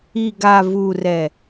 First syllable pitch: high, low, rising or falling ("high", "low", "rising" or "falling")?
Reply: low